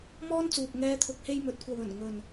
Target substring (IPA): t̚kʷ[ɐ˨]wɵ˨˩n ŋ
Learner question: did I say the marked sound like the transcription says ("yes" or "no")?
yes